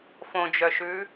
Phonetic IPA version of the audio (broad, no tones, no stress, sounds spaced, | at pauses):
f õ d͡ʒ œ ʃ ʉ